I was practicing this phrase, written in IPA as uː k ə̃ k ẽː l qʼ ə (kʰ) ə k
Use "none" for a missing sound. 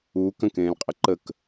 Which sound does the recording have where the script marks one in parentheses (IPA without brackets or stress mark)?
ǃ